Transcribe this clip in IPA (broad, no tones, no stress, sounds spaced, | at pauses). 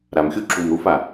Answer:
ɾ a m xʲ u ǁʰ u m ɾ u f a